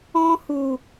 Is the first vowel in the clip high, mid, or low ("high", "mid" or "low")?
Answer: mid